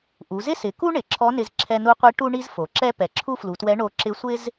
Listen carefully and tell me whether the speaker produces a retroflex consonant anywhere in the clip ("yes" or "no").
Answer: yes